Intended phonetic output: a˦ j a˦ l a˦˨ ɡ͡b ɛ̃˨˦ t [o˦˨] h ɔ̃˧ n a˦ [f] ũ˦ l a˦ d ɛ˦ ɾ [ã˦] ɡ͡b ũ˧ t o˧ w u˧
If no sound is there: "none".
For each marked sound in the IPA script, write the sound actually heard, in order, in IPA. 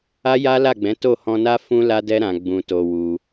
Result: o˦˨, f, ã˧

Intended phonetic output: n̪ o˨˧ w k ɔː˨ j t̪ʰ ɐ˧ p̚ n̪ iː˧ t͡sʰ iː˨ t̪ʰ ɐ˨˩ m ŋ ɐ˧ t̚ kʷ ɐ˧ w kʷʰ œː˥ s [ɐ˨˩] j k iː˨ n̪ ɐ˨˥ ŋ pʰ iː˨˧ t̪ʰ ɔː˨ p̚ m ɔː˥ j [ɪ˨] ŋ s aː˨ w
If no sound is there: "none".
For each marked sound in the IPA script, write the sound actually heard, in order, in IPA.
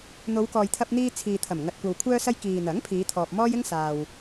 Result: ɐ˥, ɪ˥

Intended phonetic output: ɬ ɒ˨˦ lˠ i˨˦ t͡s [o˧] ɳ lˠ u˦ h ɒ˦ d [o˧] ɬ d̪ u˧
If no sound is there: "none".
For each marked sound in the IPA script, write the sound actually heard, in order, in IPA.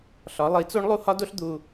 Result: o˦, o˦

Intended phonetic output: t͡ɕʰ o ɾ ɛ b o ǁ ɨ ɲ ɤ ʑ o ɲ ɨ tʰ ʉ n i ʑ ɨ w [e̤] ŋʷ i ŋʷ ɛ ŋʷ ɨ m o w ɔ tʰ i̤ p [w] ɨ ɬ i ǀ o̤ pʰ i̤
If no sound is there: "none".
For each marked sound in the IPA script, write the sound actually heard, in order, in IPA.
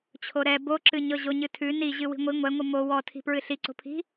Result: i̤, ɹ

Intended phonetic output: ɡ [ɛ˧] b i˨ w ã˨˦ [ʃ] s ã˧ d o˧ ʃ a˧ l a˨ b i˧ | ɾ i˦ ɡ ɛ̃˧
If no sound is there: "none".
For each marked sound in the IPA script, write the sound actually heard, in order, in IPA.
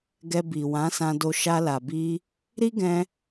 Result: ɛ˧, none

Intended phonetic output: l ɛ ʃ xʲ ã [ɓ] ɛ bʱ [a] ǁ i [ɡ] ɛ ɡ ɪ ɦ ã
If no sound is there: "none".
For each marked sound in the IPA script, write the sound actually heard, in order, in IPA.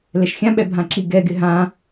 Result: ɓ, ã, ɡ

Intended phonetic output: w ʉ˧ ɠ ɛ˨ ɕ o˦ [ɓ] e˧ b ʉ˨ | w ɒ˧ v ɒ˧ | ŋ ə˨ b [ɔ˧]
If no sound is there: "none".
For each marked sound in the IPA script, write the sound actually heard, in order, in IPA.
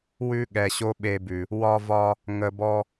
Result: ɓ, ɔ˧

